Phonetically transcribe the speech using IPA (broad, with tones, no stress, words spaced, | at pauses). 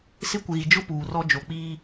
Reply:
sɪ˦kʷɪ˨ɣi˨ d͡ʒʊ˦ puː˨rɔ˦ d͡ʒo˨k͡piː˦